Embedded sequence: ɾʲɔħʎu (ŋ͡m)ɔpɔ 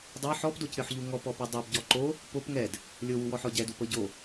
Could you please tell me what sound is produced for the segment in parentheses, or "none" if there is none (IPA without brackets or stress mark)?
ŋ